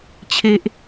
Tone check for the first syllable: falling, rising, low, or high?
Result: high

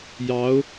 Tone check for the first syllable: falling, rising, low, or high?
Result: rising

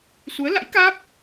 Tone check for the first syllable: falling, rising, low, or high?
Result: rising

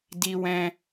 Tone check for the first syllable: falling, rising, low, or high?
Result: high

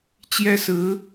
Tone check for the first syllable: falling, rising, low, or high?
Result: high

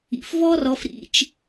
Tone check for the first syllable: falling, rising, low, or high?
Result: low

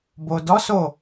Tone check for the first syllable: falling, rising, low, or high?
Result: low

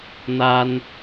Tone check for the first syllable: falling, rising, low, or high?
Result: high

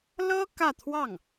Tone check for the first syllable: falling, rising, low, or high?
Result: high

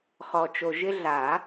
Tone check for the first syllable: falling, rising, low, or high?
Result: low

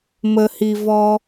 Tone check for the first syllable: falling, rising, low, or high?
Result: low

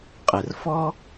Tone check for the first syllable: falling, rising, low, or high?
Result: low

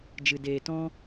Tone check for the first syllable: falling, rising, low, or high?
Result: low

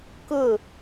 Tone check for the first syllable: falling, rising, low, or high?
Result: falling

